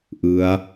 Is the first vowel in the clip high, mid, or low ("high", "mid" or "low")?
high